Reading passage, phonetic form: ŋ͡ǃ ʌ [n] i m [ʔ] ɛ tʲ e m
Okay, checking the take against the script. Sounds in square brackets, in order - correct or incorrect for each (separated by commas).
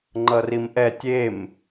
incorrect, correct